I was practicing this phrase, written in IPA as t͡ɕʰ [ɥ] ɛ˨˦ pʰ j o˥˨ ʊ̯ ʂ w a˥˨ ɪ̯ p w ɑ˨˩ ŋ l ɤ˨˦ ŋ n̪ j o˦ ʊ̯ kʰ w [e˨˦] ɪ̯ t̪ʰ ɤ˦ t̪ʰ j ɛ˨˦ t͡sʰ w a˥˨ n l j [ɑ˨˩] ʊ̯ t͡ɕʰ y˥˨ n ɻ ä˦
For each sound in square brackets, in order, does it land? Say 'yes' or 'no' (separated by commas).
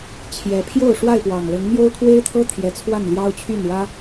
no, no, no